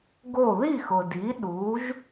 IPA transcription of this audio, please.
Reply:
ɡ o˥˩ ð i˥˩ x ʊ˩ d i˩˥ ɗ u˩˥ ʒ

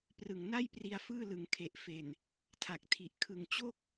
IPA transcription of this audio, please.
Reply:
p r ɯ˨˩ ŋ n a˥˩ j p r i˧ a̯ f ɯː˥˩ l ɯ˩˦ ŋ kʰ e˨˩ ʔ f e˨˩ n | tʰ a˨˩ k̚ tʰ i˨˩ ʔ kʰ ɯ˨˩ ŋ t͡ɕ o˥˩ k̚

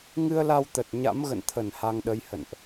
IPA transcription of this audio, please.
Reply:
ŋ ɨ˧ ə̯ l a˧ w t̪ ə˨˩ t̚ ɲ a̰˧˥ m ɣ ə̰˧˨ n t̪ʰ ə˧˩ n h a˧ ŋ ɗ ə˧ j h ə̰˧˨ n ʔ

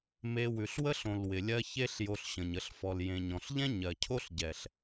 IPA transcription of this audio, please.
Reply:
m e˧ w ʉ˨ ɬ w ə˦ ɬ õ˨ l w ɪ˨ lʲ ɜ˦ ç e˦ ɬ j o˧ ɬ ɕ ə̃˨ ɲ ə˧ ɬ f ɔ˨ l j ẽ˨ ɲ ɔ̃˨ ɬ ʎ ɛ̃˦ ɲ ɜ˨ cʰ o˦ ɬ ɟ ɛ˨ ɬ

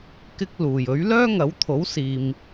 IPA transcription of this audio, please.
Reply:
k ɪ˥ k̚ l uː˨˩ j ɵ˨˥ ɥ l œː˥ ŋ ɐ˨˥ w t̪ʰ o˨˥ w s iː˨ m

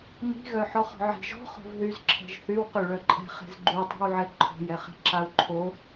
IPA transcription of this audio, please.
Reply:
m i̤ ɣ œ ħ ɔ χ ɔ̤ ʕ i̤ ʒ ɔ̤ χ o̤ v ð y z ǁʰ ɛ̤ ʒ θ y w q y ɭ œ ǃʼ ɛ̤ χ e̤ z ɡ͡ǃ y tˤ i̤ w ʕ ɛ ǃʰ o̤ j ɛ χ e̤ ǁ a u̯ ǃʰ o

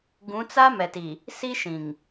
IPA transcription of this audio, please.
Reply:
ɡ ũ˨˦ t͡s a˦ m ɛ˨ t i˨ | s i˦ ʃ ĩ˨ ŋ

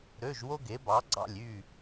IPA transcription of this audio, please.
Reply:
ɾ ø˧˥˧ ʒ w o˥ ɡ e˨˥ b ɑ˨˥ ɡ͡ǀ ɑ̰˥˨ lʲ y˥˨

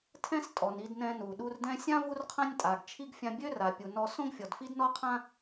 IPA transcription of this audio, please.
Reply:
tʰ ɛ̃˥ s tʼ ɔ˩ n i˧ d n ɛ̃˧ n u˩ ɗ u˧ r d ɛ̃˥ sʲ ã˥ v u˥ r qʰ ã˥ nʲ tʼ a˩ ɡ t͡ʃʰ i˥ ɡ fʲ ã˧ bʲ ø˥ r a˩ pʲ u˩ n ɔ˧ s õ˥ ɡ fʲ ɔ˩ d f i˥ d n ɔ˥ qʰ ã˥

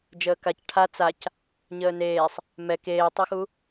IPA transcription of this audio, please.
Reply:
d͡ʒ əː k a c ʈʰ a t͡s a c | ɲ əː n eː sˤ | m ɛ k eː tˤ o x u

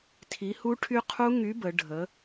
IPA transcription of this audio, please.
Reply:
tʰ i˨˥ h u˦˥ ʈʰ y˦˥ qʰ u˦˥ ŋ y˨˥ b ə˩˧ ɖʱ ə˨˥

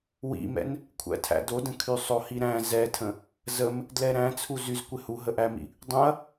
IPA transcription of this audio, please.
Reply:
w ḭ m ɛ̰ n | kʷʰ æ̰ tʰ æ̰ d o d ə̃ kʰ y sˤ o h i ɾ æ̃ z ɛ tʰ ə̃ | z ə m | d l ɛ ɾ æ̃ t͡sʰ u z y z kʷ ɪ h u ɦ ə ʔ æ m ḭ | dˤ ũ ɐ̯

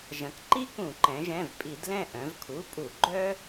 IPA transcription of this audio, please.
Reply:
ʒ ɐ̃˩˧ k ǃ i˥ k ũ˧˩˧ ǃ ɛ̃˩˧ ʒ ɛ̃˩˧˩ v pʼ i˧˩˧ d l ɛ̃˥˨ ʔ œ̃˩˧ v kʰ u˩˧˩ pʼ u˧˩˧ ɡ͡ǃ œ˥

